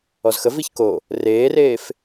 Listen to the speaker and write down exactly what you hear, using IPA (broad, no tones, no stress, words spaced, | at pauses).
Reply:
ɔzxə viçko | reːreːf